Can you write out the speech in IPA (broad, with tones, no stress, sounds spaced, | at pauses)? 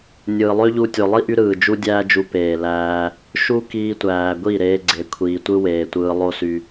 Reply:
nʲ ɯː˨ lˠ ø˦ ʎ u˧ tʲ o˨ lˠ i˦ ʔ y˧ ɾ ɯː˨ d͡ʒ u˦ dʲ æː˦ d͡ʒ u˧ p eː˨ l æː˧ | ʃ u˦ k iː˧ tʷ æː˨ ɡʷ i˦˨ ɾ eː˧ ɡ͡ǀ e˨ kʷʰ iː˨ tʷ ɯ˦ w eː˨ tʷ ɯː˧ lˠ o˦ s y˧